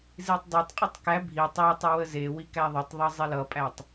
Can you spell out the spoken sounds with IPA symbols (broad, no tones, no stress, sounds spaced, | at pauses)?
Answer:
z i tˤ dˤ e tˤ qʼ e tˤ k æ bʱ i tˤ æ tˤ i w ə z e w i k æ ðˤ ə tˤ ðˤ ɤ zˤ e l ʌ pʼ æ tˤ